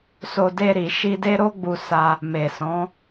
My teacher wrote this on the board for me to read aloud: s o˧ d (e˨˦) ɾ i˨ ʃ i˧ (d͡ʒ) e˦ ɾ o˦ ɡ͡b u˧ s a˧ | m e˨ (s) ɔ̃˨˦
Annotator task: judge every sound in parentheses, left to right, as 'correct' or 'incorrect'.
incorrect: e˧, incorrect: d, correct

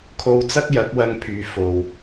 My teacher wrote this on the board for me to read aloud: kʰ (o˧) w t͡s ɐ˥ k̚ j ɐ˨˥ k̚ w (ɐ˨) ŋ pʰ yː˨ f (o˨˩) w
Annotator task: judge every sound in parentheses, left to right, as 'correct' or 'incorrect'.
correct, incorrect: ɐ˧, incorrect: o˨

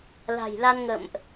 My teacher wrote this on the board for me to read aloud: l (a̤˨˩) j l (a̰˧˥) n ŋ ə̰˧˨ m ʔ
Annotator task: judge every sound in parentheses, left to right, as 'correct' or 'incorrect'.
correct, incorrect: a˧

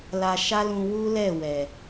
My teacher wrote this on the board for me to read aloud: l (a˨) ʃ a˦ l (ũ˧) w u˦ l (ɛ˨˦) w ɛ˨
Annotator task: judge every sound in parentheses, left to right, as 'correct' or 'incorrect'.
incorrect: a˧, correct, incorrect: ɛ˦˨

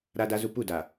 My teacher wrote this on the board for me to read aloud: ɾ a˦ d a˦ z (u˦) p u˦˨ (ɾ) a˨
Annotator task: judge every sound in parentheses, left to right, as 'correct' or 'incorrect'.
correct, incorrect: d

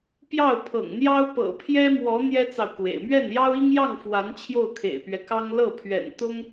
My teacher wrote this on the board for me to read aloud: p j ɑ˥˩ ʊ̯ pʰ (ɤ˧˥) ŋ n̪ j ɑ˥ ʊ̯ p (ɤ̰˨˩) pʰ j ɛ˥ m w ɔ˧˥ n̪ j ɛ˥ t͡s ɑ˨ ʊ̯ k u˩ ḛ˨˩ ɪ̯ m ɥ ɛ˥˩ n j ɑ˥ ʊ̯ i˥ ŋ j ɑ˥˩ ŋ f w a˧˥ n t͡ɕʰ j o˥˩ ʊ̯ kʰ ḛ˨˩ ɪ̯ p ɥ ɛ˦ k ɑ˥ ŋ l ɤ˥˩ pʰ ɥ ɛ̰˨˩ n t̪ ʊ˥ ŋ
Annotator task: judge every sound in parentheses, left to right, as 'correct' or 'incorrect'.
incorrect: ɤ̰˨˩, correct

